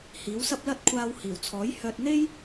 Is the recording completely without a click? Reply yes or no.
yes